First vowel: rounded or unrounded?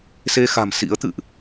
unrounded